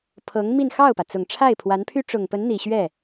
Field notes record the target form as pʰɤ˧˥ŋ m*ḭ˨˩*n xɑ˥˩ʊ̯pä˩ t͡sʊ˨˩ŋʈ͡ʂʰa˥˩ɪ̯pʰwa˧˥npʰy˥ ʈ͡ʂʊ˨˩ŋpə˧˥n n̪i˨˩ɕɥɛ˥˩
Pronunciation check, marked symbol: incorrect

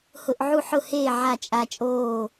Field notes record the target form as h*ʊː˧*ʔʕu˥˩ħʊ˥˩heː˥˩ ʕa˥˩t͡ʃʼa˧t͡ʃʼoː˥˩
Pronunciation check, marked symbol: incorrect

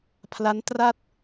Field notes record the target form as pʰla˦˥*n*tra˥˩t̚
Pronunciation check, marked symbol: correct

